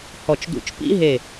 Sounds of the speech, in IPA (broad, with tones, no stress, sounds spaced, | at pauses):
h ɔ˧˩ t͡ʃ d ṵ˧˥ t͡ʃ p ḭ˥ ɦ e˧˩